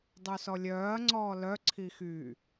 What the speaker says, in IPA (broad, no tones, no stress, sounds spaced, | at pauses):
dˤ u s ɔ lʲ œː ɐ̯ ŋ͡ǀ ɔː l œ ǀʰ i x y